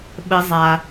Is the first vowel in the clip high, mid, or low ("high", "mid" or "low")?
mid